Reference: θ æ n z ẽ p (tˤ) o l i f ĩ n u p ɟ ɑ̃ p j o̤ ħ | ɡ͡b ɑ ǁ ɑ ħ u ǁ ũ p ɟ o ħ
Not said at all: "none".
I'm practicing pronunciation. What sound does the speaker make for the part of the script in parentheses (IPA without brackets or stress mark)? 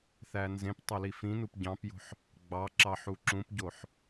tˤ